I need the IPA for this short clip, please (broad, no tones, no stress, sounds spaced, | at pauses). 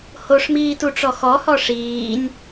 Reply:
h o ʂ m iː t u ʈ͡ʂ ɔ x ɔ h ɔ ʂ iː nʲ